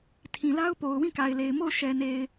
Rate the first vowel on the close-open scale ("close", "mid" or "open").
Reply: close